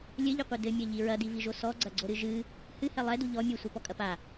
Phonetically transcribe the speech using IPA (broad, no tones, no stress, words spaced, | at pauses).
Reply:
lʲɘʎiqʷi dɘmʲɐʎi ɹɐdiviʒo sɔɡ͡ǀɐɡ͡ǀoɾɨ ʒɨ | hɨhɛ lˠɛdu ʎɔ mʲusʷɛpɔkʼɐ pa